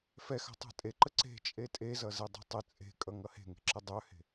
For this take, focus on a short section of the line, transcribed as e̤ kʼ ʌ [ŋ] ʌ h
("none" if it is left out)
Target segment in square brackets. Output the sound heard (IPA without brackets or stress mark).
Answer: ŋ